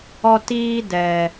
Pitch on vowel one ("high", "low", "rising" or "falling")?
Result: high